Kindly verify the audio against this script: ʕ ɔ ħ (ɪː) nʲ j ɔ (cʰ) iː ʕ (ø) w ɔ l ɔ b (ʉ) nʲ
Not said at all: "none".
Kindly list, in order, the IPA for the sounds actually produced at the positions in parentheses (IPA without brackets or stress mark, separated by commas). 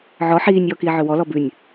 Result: iː, k, ø, ʉ